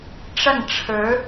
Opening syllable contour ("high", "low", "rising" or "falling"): falling